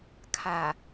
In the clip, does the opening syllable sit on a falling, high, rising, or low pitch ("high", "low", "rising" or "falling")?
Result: low